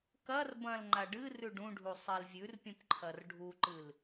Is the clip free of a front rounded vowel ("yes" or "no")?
yes